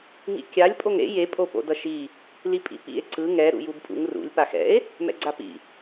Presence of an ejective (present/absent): present